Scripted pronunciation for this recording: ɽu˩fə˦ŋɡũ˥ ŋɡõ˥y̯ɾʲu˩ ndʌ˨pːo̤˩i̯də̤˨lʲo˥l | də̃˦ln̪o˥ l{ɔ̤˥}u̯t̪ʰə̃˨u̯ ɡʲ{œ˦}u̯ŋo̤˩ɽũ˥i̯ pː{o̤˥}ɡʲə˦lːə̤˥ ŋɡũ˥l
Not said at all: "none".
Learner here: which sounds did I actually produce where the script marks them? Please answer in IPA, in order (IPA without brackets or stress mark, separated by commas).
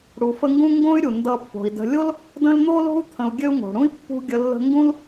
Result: o̤˥, ø˦, ṳ˥